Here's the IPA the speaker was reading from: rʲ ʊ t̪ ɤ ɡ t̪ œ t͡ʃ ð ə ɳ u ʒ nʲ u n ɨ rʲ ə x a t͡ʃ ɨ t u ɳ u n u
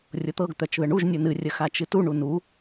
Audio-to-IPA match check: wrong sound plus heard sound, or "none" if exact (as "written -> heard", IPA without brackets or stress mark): none